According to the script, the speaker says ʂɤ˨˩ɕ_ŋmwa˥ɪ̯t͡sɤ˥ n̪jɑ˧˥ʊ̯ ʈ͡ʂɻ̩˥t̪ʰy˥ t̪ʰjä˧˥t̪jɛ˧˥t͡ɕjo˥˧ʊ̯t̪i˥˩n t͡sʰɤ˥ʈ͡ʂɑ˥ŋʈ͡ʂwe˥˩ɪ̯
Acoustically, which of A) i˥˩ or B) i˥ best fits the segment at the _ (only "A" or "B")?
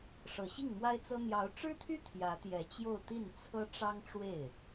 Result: A